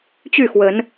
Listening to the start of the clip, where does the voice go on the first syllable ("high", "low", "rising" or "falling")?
falling